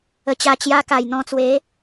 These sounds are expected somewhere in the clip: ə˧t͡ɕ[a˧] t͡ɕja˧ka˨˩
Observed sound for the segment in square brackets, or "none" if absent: a˧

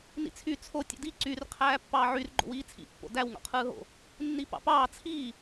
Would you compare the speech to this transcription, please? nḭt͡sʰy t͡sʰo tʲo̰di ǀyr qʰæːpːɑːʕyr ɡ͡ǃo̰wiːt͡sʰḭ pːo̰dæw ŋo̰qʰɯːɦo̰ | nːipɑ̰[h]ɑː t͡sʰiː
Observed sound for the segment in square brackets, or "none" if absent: p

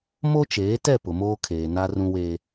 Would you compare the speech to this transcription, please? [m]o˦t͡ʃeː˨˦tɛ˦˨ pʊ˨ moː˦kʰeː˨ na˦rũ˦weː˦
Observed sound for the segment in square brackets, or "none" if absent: m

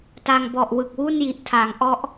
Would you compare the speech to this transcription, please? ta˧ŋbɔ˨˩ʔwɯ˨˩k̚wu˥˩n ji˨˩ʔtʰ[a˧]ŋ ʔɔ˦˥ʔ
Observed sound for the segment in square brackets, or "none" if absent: a˩˦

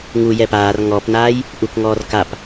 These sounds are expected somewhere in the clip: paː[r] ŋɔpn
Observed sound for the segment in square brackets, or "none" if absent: r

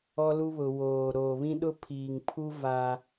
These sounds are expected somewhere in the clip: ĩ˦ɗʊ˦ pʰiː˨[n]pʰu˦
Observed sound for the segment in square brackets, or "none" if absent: ŋ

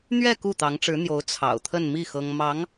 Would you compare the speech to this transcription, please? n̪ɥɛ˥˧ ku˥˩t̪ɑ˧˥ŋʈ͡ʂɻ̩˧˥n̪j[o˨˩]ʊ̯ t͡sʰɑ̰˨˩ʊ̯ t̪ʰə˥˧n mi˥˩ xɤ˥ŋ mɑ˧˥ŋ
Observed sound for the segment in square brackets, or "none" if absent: o˧˥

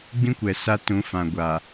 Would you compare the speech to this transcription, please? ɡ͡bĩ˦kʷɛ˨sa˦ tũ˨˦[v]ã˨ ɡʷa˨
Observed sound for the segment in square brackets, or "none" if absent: f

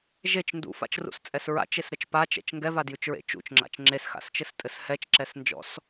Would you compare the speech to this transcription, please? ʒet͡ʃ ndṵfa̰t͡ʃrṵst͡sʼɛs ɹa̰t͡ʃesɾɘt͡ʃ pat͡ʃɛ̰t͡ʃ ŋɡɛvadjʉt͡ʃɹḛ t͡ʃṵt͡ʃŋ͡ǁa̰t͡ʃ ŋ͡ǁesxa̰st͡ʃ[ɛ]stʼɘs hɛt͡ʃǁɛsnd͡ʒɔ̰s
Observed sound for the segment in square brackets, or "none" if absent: ɘ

